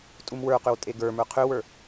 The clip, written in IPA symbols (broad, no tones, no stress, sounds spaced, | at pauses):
tʼ u m w ə˞ q ʏ w tʼ e ɡ ə˞ m ə˞ qʰ ø w ə˞